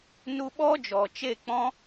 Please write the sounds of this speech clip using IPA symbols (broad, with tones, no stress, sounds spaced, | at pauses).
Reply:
n u˧ ɓ ɔ˦ d͡ʒ ɔ˨ t͡ʃ e˦˨ k͡p ɔ̃˦